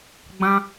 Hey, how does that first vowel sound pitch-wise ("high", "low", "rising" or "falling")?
high